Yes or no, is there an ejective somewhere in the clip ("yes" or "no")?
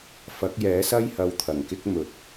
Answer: no